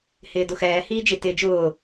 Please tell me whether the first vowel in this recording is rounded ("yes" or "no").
no